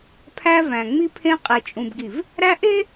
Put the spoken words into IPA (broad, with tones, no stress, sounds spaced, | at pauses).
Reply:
pʰ æ˦ v æ̃˨ ŋ͡m i˦ pʰ ẽ˦ qʼ e˨ t͡ʃʼ ũ˨ b ɡ i˨ v | ɾ æ˦ ʔ e˦